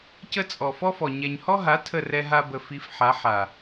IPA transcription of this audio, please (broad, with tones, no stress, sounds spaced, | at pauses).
c ə˧ t͡sʼ ɔ˨ f ɔ˦ f ɔ˨ ɲ ɛ˨ ɲ h ɔ˦ ɦ a˨˦ tʰ ə˦˨ r ɛ˧ ɦ a˧ b ə˨ f i˧ f ħ a˨˦ ħ a˨